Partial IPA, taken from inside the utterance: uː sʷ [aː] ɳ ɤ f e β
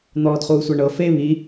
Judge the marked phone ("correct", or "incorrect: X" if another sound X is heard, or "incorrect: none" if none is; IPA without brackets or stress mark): incorrect: a